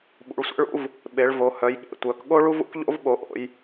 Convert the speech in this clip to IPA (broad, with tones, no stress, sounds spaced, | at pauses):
ɓ ṵ˩˧ ɭ sʷ ḛ˥ ɭ ṵ˥ v | ɓ e˩˧ ɭ v o˩˧ h œ˩˧ j ɠ ḛ˩˧ tʷ œ˩˧ k ɠ o˥ ɭ u˥ v ṵ˥ k ʎ o̰˥ v ɓ o˩˧ ʔ o̰˩˧ j